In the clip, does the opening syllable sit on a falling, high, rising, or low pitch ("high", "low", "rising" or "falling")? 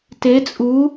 rising